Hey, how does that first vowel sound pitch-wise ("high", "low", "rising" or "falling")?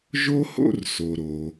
high